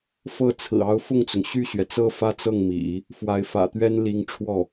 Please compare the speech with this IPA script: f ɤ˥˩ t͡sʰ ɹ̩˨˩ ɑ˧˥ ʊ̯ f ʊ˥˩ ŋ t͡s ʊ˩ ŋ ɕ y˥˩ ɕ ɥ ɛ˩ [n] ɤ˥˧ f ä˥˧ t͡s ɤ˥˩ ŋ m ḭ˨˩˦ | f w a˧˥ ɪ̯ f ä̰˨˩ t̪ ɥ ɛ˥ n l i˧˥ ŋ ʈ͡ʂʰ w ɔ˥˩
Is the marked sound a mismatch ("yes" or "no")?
yes